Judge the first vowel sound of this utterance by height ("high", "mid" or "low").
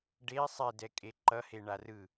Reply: mid